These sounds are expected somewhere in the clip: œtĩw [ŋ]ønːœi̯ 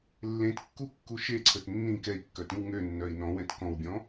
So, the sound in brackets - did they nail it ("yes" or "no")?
yes